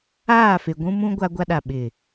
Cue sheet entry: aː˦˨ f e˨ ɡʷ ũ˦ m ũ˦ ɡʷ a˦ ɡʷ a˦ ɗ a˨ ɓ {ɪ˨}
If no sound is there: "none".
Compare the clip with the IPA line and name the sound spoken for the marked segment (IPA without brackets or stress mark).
ɪ˨